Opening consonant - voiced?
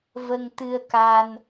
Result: yes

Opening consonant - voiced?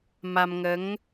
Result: yes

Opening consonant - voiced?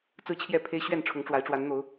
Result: no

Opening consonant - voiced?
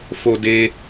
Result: no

